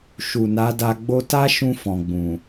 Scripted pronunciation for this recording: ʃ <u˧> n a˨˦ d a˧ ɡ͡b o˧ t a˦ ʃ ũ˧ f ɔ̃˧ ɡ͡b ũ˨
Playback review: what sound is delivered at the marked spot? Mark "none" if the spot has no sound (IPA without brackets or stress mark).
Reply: u˨